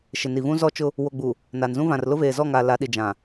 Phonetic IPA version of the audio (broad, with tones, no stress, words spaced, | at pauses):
ʃɪ˨ni˨vũ˦ zɔ˦ t͡ʃʊ˦ | wo˨ɡ͡bu˨ | naː˨nzũ˦vã˨r lʊ˦veː˨zɔ˦˨ŋaː˨ la˨˦ɗi˨ d͡ʒã˨